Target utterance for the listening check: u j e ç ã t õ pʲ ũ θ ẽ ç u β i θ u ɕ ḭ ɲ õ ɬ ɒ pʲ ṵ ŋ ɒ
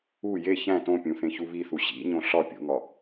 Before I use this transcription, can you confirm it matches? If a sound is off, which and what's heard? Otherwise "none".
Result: ã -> æ̃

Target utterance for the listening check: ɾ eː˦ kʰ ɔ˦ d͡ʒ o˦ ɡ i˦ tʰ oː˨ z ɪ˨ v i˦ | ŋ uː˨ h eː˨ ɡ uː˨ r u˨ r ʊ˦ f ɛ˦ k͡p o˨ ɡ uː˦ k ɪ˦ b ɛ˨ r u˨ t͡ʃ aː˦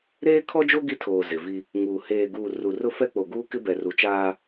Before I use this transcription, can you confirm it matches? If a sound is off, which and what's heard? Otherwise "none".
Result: none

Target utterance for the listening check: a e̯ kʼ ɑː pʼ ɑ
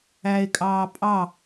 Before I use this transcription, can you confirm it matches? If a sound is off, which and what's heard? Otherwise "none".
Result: a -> æ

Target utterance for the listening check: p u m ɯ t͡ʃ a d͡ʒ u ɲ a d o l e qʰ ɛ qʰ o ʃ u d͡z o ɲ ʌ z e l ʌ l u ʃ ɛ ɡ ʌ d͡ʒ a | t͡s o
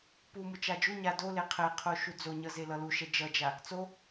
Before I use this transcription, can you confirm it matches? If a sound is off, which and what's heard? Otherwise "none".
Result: ɡ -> d͡ʒ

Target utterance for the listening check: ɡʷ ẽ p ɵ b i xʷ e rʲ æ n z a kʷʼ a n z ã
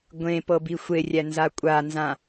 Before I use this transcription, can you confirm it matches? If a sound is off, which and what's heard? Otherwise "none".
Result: ɵ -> ɤ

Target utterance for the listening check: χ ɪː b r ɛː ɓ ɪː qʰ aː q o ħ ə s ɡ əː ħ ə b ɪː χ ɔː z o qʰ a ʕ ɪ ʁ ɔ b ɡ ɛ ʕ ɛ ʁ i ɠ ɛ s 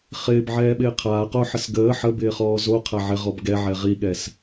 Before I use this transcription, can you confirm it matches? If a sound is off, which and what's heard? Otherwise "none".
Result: r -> ʕ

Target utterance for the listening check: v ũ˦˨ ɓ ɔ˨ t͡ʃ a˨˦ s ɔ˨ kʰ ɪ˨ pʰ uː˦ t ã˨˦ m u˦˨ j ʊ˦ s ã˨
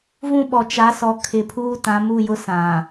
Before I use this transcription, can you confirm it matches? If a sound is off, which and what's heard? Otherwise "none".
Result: none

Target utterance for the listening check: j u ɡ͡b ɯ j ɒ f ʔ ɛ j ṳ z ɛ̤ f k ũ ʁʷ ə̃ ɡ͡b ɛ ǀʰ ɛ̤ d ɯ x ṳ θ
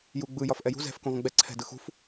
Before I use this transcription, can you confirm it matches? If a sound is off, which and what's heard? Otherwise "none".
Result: θ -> f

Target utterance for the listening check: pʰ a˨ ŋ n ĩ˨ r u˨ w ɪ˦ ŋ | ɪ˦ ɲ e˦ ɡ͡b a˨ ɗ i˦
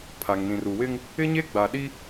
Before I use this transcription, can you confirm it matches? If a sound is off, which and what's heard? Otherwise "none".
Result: none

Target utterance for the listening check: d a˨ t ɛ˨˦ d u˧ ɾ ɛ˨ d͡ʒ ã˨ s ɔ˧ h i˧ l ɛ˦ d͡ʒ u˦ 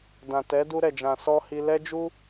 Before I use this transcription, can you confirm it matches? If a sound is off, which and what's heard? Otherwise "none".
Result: a˨ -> ã˨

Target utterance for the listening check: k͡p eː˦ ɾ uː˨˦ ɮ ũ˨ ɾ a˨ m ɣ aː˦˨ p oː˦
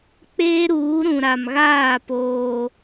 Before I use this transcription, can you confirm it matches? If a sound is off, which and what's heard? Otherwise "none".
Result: ɮ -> ɾ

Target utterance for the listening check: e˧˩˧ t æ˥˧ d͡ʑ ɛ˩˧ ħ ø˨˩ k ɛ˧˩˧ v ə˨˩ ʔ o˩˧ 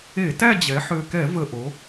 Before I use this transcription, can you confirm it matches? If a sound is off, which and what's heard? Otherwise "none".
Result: none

